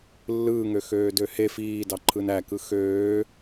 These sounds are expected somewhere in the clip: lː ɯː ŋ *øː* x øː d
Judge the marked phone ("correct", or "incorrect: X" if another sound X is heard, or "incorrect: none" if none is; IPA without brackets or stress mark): incorrect: ø